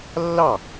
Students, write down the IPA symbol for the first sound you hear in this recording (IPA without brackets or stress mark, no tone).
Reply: lː